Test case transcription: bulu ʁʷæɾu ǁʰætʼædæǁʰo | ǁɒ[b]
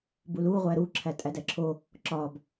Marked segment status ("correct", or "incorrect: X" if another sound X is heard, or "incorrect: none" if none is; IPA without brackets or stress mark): correct